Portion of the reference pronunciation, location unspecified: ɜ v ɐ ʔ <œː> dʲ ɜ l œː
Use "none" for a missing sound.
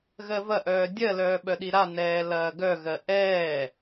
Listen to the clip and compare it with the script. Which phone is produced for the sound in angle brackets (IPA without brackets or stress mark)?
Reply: œː